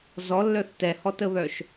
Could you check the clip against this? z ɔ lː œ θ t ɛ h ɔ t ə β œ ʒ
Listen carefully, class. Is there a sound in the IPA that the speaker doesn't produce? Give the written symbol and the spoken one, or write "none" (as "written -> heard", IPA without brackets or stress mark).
ʒ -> ʃ